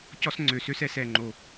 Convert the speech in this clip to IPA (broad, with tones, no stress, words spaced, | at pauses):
cɔ˦˥sŋ͡ǀø˨˩sø˦˥sɛ˧˩˧s ɛ˨˩ŋ͡ǃo˨˩